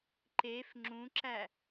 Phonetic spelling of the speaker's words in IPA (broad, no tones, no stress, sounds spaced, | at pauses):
ǃ e f ŋ͡ǁ ũ ǁ æ